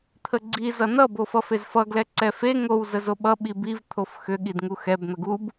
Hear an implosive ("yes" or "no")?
yes